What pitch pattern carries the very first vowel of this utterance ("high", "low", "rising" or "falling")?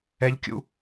high